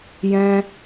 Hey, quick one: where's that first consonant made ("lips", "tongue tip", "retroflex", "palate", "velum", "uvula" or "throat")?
palate